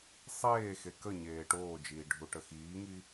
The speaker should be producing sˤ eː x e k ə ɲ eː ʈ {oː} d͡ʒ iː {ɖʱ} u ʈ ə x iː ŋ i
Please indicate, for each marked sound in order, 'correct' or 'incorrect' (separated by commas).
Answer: correct, correct